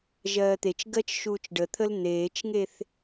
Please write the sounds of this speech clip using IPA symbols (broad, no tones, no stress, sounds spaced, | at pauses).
ʒ ɜː t̪ e t͡ʃ ɡ ɜ t͡ʃ ʃ uː t͡ʃ ɖ ə t̪ʰ ə l n̪ eː t͡ʃ ŋ e θ